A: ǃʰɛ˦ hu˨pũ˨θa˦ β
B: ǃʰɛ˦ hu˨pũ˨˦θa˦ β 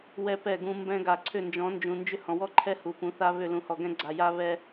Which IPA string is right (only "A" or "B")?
B